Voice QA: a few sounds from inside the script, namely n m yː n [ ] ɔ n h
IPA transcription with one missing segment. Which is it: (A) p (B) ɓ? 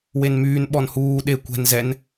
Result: B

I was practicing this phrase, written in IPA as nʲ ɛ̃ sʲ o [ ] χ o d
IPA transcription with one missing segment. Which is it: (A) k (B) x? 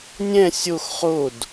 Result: B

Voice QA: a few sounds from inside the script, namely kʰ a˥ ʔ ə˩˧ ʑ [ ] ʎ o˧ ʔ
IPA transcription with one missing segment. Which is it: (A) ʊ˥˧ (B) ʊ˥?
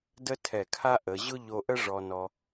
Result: B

